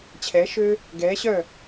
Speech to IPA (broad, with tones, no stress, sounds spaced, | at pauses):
t͡ɕʰ ɛː˩˧ ʃ øː˧ | ɡ ɛː˩˧ ɕ œː˧˩